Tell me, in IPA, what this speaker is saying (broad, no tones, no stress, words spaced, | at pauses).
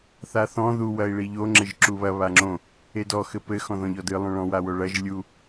θaθɔ̃ ðu wɐi̯ɭiʎo ŋ͡ǁɘʒǁuβɐ βaŋ͡ǁõ | edɔ xɘpɘ xɔ̃ðɔ̃ʎɔdɨ lˠõɭɔ̃ wawoɭɐʒ lʲu